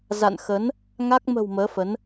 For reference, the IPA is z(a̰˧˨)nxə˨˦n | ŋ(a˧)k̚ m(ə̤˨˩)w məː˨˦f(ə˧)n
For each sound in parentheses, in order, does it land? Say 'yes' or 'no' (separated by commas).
yes, no, yes, no